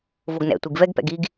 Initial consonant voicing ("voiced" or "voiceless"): voiced